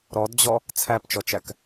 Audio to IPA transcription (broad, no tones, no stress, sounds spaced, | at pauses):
ɾ ɔ d d͡ʑ ɔ | t͡sʰ æ p t͡ʃ ɔ t͡ʃ æ k